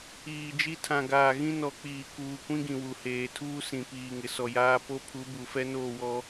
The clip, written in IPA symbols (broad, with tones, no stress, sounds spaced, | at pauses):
iː˨ d͡ʒ i˦ tʰ ã˨ ɡ aː˨ ɣ ĩ˦ n ɔ˨ k͡p iː˨ k uː˨ kʷ ĩ˦ ɡ ĩ˨ w u˨ h eː˨ tʰ uː˦ s ĩ˨ p iː˨ ŋ ɪ˨ s ɔ˨ j aː˦ p o˦ pʰ u˨˦ b u˨ f ɛ˦ n oː˦˨ w ɔ˦